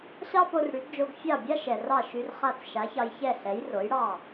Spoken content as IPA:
ɕ ɑ˥ p o˧ r ɽ y˩˥ ɡ d͡ʒ o˧ ɡ fʲ ɑ˥˩ bʲ a˥ ʃ ɛ˩ r ɑ˥˩ ʃ y˧ r χ a˥˩ t͡s ʃ a˩˥ ç ɑ˧ j ç ɛ˥˩ ɬ ɛ˩˥ j r o˩˥ j ɽ ɑ˥˩

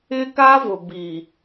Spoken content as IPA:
ɪ˦ k a˦ v ʊ˨ b i˨

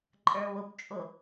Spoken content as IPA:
ǃʼ ə˞ w ʊ p t͡ʃʼ ʊ

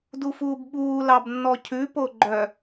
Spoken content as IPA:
d u f uː b ɓ uː l ɑ b nː ɔ cʰ ʉ p o ɡ͡ǃ œ

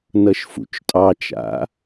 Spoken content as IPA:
n ʌ ʃ f ṵ t͡ʃ tʼ ɑ t͡ʃ a̰

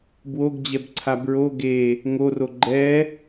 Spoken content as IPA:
b w o ɡ d͡ʑ ɛ b ǀʰ a b ɹ o ɡ e | ŋ o r o ɡ͡ǃ ɛ

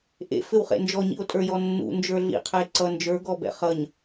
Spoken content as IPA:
ʔ ḛ f ɘ w χ ḛ n d͡ʒ ɔ ɲ ḭ o̯ tʼ ə˞ j ɔ nː ṵ n d͡ʒ ə˞ ɮ ḭ qʰ ɘ e̯ ǀ ʌ n d͡ʒ ə˞ ɡ ɔ b ɛ̰ χ ʌ ɲ

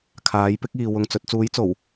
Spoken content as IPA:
kʰ aː˨˥ j p ɪ˥ k̚ iː˨ w ʊ˧ ŋ t͡s ɵ˨˥ t̚ t͡s uː˨˥ j t͡s o˨˩ w

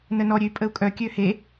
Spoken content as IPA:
n ə n ɔ ɾʲ ø y̯ pʼ ə u̯ kʼ œ kʲ ø h e

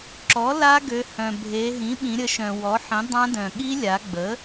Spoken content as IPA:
ǁ ɔ˩˥ l a˦˥ ɡ ø˩˧ h œ̃˩ bʱ e˩˧ ɦ ĩ˩˥ ɓ ĩ˩˧ ɾʲ ə˩˥ ʃ œ̃˩ w ɔ˩˥ ħ ĩ˩˥ dˤ ã˦˥ d œ̃˩ ɠ i˦˥ lʲ a˩˧ ɡ͡b ə˩˥

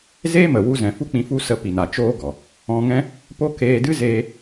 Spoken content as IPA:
z eː˦ m ə˨ w u˧ z ɛ̃˨ f u˦ k͡p ĩ˧ f u˦ s ə˧ p i˨ n a˨ t͡ʃ oː˦ ɡ ɔ˨ | ɔ̃˧ ŋ ɛ̃˦ | p o˦ k eː˧ d ɨ˦ z eː˧

